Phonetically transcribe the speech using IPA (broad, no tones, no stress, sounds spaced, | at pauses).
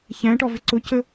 ç æ̃ ʈ ɔ v ɪ ǀ ʊ c ə